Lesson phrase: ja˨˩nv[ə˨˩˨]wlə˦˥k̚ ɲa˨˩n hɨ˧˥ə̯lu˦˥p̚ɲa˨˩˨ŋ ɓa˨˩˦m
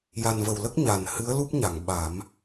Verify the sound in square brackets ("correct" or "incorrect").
incorrect